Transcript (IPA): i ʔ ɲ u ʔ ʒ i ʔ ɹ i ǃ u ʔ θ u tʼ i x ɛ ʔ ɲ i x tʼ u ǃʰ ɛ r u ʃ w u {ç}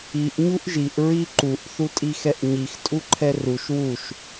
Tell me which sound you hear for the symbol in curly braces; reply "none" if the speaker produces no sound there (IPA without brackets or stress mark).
ʃ